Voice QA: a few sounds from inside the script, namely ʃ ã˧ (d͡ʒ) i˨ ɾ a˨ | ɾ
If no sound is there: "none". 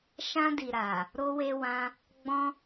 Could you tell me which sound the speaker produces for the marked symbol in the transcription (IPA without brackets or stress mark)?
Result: d